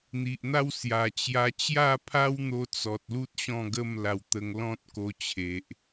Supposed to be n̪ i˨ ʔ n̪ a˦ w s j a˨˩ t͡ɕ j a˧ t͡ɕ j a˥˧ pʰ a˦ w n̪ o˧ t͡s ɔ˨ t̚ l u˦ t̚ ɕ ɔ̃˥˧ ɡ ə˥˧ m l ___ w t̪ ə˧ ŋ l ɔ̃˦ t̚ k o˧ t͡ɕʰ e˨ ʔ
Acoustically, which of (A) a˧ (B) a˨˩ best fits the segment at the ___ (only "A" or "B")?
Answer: A